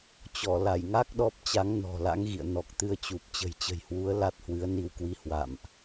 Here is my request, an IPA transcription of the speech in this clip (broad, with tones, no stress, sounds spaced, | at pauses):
t͡ɕ ɔ˧˩ l a˧˩ j ŋ a˦˥ k̚ ɗ ɔ˦˥ p̚ t͡ɕ a˨˦ ŋ n ɔ̤˨˩ l a̰˧˥ ŋ ɣ ḭ˧˨ ə̯ n ɔ˨˩ k̚ t̪ ɨ˧ ə̯ t͡ɕ u˨˩ p̚ t͡ɕ ə̤˨˩ j t͡ɕ ə̤˨˩ j h w u˨˦ ə̯ l a˦˥ t̚ h w ɨ˨˦ ə̯ n i˧ w k w i˧ h w a̰˧˨ m ʔ